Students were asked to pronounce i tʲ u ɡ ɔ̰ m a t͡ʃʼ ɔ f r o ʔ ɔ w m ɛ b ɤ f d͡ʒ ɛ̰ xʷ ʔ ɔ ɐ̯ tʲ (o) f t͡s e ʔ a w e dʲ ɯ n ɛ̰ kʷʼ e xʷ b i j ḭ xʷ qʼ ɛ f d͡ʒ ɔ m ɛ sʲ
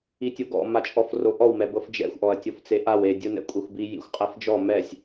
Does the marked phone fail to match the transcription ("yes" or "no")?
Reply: no